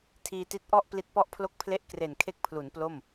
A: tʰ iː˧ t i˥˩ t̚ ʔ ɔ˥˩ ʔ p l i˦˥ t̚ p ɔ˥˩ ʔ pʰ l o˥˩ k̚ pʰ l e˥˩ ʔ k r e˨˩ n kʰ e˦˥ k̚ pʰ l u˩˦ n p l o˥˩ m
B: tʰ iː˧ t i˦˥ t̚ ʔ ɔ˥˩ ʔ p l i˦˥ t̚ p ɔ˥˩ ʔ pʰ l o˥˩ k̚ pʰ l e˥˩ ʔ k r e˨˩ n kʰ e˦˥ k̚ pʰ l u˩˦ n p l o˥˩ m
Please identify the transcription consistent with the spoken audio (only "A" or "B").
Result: B